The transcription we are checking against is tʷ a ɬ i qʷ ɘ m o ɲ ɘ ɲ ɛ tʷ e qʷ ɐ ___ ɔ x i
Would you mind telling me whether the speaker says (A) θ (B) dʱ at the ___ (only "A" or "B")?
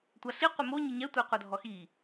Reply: B